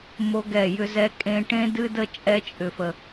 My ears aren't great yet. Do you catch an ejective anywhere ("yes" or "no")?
yes